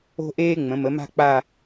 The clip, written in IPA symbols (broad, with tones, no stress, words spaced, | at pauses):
o̤˥ʔeː˥ŋ͡mə̃˩˥ mə˩˥ma̤˥ k͡pa˥˧